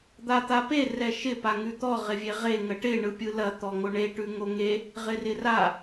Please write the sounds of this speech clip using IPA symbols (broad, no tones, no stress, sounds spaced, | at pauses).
d̪ a t̪ a p e r ɛ ʃ ɪ p a ŋ ʉ t̪ ɔ ʁ ɪ vʲ e ʁ e ŋ ə ʈ ɪ ɳ ɯ pʲ ɯ l ɐ t̪ ɔ ŋ o ɳ e ʈ ʉ ŋ o ŋ e | ʁ ɪ r ɪ r a